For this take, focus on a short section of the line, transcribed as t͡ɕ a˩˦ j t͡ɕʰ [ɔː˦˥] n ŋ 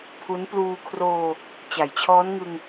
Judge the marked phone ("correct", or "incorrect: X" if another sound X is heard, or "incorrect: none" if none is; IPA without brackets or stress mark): correct